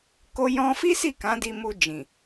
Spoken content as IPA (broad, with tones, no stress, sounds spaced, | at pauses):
k o˧ j ɔ̃˧ f i˦ s i˦˨ k ã˨˦ d i˧ m u˧ d͡ʒ ĩ˨